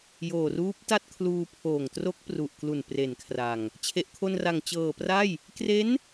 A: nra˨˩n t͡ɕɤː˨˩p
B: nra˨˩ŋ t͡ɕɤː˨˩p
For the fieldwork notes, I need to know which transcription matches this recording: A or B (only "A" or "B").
B